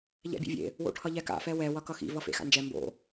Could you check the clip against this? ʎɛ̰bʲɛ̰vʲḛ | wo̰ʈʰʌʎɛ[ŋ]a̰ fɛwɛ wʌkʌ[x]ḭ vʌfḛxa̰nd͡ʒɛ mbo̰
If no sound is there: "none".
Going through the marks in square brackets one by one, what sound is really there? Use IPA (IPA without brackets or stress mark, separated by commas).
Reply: k, x